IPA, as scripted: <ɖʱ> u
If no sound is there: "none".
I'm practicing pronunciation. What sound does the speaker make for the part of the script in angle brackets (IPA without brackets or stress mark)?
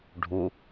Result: ɖʱ